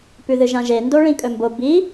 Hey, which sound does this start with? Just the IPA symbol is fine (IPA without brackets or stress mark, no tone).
p